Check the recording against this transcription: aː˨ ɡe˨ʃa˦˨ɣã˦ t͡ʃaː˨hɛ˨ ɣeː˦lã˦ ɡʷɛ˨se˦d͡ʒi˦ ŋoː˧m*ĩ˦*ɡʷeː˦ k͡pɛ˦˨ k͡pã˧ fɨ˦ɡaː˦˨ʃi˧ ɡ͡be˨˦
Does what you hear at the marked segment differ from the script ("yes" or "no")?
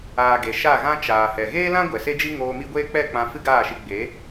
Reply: yes